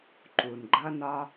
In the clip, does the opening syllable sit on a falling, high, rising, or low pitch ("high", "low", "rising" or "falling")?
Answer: low